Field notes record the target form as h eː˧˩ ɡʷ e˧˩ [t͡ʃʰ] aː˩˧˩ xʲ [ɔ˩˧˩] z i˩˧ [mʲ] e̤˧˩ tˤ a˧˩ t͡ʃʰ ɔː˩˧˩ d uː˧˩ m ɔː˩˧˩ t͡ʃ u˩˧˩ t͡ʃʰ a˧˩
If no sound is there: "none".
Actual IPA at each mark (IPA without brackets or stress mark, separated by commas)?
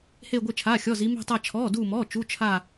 t͡ʃʰ, ɔ˩˧˩, m